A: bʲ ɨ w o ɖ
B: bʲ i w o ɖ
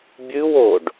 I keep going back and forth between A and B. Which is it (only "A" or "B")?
A